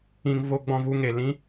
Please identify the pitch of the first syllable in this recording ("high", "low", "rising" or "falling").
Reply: low